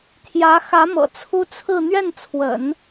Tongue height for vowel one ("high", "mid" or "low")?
low